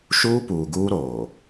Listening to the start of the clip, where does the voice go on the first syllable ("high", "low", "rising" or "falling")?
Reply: high